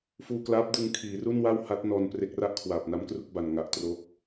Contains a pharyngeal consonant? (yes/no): no